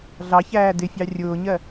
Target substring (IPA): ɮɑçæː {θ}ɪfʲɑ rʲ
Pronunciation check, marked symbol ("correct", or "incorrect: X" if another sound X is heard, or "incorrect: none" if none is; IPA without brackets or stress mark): incorrect: d